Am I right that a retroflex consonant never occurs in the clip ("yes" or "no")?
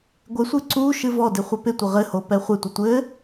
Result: yes